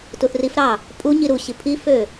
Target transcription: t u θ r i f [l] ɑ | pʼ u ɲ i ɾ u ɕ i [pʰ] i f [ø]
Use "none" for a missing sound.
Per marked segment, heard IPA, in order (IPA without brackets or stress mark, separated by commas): ɾ, pʰ, ø